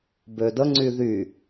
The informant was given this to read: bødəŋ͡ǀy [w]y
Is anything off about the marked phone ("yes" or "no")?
yes